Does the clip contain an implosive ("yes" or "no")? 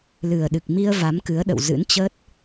yes